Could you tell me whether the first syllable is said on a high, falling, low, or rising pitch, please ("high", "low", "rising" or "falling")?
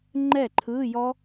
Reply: falling